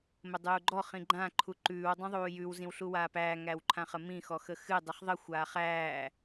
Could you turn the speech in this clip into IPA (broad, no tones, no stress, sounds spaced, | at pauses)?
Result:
m ə dˤ uː ɡ͡ǃ ɔ χ ĩ ɡ͡ǃ ã ǃʰ u ǃ ʉː w dˤ ũ ðˤ uː j ʉ w z ĩ w ɬ u w aː p æː ŋ æ w ǃʰ ã χ ə m ĩ x ɔ x ə x ɨ dˤ ɨ χ ðˤ ə xʷ aː χ æː